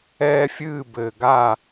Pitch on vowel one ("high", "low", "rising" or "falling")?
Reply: high